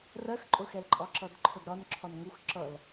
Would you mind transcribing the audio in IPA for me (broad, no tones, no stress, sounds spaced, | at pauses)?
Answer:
r ɜ x ǃʼ ʊ x ɛ l ǃʼ ɒ ǁ ʌ d ǃʰ ʊ d ɾ ɒ n ǁʰ ɒ n ŋ u x ǁ ʌ l